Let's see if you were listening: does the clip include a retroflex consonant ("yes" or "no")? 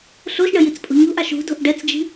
yes